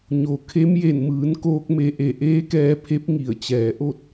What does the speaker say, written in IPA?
ɲ o˩ kʰ e˧˥ m j e˧˩ n m ɯː˩˧ n k oː˧ k̚ m e˧ ʔ e˧˩ ʔ eː˧˥ k ɛː˧ pʰ e˧˥ p̚ ŋ i˧˩ ə̯ t͡ɕ ɛː˩ ʔ o˥˨ t̚

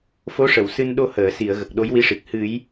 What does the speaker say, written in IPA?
f o˧˥ ʂ ə˨˩˨ w s ɨ˧ n ɗ o˧ h əː˨˩˨ s i˨˩˨ ə̯ ɣ ə˨˩ k̚ ɗ o˧˥ j w i˧˥ ʂ i˨˩ k̚ h ɨ˨˩˦ j

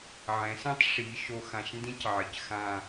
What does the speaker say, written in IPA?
ʕ ɛ̃˩˧ s ɛ̃˥ tˤ ʂ i˩˧ ʃ o˧ x ã˧˩ ʃ n d ĩ˥ c ʕ ɪ˩˧ c x ã˧˩

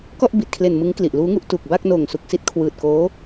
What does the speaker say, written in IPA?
k ɔ˥˩ ʔ b i˨˩ t̚ kʰ l e˨˩ n m ɯ˦˥ ŋ k l i˨˩ ʔ l uː˦˥ ŋ u˥˩ ʔ t u˨˩ k̚ b a˥˩ k̚ n oː˨˩ ŋ s u˨˩ k̚ s i˦˥ t̚ kʰ w ɯː˨˩ t̚ k oː˦˥

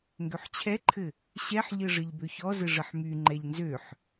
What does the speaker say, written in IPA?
ŋ ɡ ø ħ t͡ɕʰ ɛ ǃʰ ɘ | ɕ ɛ ħ ʎ ɘ ʐ ɘ ʎ b ø ç ɔ z ɘ ʐ ə ħ m y ŋ͡ǃ ɛ ʎ n z ø ħ

